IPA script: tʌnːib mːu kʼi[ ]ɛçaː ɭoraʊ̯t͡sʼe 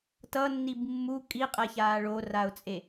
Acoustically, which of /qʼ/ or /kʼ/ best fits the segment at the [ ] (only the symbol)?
qʼ